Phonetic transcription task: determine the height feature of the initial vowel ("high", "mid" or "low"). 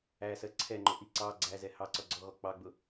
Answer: low